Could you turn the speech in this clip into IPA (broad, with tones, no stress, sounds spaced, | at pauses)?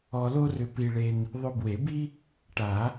ɔ˧ l o˥ r ʏ˧ p i˧ ɭ e˧ n | ðˤ ʏ˧ b w e˨˩˦ b i˥ | ʈ a˨˩˦